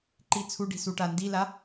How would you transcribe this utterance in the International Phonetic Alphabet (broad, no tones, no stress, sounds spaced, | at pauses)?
ǃ i t͡sʰ u ɖ i̤ s u ʈ a n d i l a